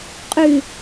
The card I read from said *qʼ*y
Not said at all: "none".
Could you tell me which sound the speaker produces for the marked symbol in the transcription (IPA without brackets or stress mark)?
qʼ